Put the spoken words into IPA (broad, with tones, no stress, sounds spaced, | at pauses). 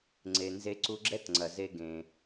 ŋ͡ǀ e˩ n z e˧ ǀ u˧ ɡ͡ǁ ɛ˥ t ŋ͡ǀ ɐ˩ z e˧ ɡ ẽ˩